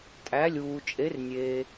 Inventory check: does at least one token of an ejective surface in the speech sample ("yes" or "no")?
yes